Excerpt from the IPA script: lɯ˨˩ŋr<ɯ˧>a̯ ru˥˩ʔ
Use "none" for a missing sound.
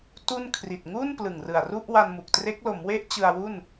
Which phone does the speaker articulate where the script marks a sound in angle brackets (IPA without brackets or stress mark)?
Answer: ɯ˨˩